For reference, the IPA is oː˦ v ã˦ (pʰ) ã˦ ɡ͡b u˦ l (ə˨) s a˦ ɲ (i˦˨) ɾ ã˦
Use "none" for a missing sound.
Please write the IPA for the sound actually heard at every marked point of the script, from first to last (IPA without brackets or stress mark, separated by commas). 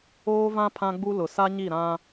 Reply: pʰ, ʊ˨, i˦˨